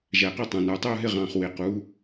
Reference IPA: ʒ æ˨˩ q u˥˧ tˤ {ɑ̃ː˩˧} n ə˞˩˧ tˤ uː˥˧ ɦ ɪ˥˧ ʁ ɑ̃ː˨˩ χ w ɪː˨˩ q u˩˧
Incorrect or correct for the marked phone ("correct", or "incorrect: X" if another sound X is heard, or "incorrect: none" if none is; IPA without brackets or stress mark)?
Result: incorrect: ɑ̃˩˧